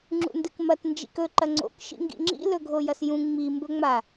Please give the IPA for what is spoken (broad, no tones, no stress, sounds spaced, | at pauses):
ŋ͡ǁ ṵ n d ɨ k m ɐ t n d͡ʒ ḭ k ɵ ǃ ɐ ŋ͡ǀ o̰ k ʃ ḭ ŋ ɡ ḭ ŋ͡ǁ ḭ l ɵ ɡʱ o j ɐ s j ũ ŋ͡m i m b ɵ ŋ͡m a